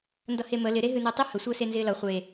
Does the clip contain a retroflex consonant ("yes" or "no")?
no